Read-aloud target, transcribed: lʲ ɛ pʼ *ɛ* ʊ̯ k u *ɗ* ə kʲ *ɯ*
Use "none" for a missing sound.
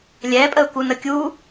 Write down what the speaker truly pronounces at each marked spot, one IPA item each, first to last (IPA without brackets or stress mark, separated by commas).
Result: ə, n, u